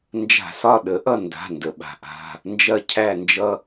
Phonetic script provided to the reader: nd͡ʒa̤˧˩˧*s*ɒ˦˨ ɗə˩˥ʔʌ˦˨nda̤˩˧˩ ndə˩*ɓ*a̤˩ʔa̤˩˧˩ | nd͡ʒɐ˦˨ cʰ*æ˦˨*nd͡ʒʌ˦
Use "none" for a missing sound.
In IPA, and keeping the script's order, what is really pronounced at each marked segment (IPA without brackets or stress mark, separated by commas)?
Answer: s, ɓ, æ˦˨